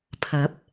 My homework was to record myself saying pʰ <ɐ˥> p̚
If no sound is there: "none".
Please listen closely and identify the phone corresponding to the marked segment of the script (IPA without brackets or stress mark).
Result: ɐ˨˥